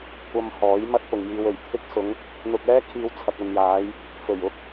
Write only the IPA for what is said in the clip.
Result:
kʷ ɐ˧ m h ɔː˨˥ j m ɐ˥ t̚ p ʊ˨ ŋ j iː˧ w ɵ˨˩ ɥ t̪ʰ ɪ˥ k̚ s ʊ˨˧ ŋ | n̪ ʊ˧ k̚ ɛː˥ kʰ iː˧ w t͡sʰ ɐ˨ k̚ ɐ˨ n j aː˨˧ j | f ɵ˨˩ ɥ ʊ˥ k̚

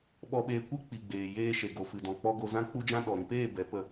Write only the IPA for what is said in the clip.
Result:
ɓ ɔ˧ ɓ eː˧ kʷ i˦ k͡p i˨ ɡ͡b eː˨ j eː˧ ʃ e˨ ɡ o˨ f ɨ˨ d ɔ̃˨ k͡p ɔ˧ ɡ o˧ z ã˦ k͡p u˦ d͡ʒ ã˦ ɗ ɔ˨ ɾ ĩ˧ p eː˦˨ b ɛ˨˦ p ə˧

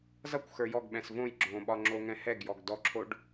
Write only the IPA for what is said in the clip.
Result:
z ʌ kʷ x ə˞ j ɔ ɡ ɓ ɛ̃ s v õ j ɡ͡ǁ õ ɓ ɒ ŋ͡ǁ o ŋ ɛ̃ h ɛ ɡ j ɔ ɡ d ɔ ǁʰ o ɖ

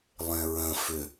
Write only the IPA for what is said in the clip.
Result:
lˠ ẽ ɹ ə̃ f ʏ

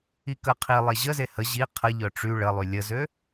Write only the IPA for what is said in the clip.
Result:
i k ə qʰ i lˠ e ʑ ə z e h ə ʑ i qʰ ə ʎ œ ʈ͡ʂ y ɭ ə lˠ y lʲ ə z ø

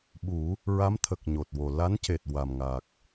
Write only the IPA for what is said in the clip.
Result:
ɓ u˨˩˦ | ɹ a˧˥ m t̪ʰ ə˨˩ k̚ ɲ o˨˩ t̚ w o˨˩ l a˧˥ n c e˨˩ t̚ w a˨˩ m ŋ a˨˩ k̚

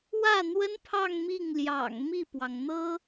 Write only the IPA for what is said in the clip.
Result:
w ä˥˩ n̪ w ə˥ n pʰ ɑ˥˧ ŋ m i˥˩ ŋ l j ɑ̰˨˩ ŋ m i˥˩ p w ɑ˩ ŋ n̪ ɤ˥

